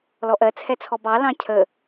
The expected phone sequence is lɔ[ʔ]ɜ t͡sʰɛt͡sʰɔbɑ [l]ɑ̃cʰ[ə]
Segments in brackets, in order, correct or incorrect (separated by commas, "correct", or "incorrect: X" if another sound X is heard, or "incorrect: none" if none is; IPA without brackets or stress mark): correct, correct, correct